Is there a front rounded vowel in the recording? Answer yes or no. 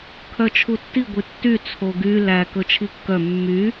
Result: yes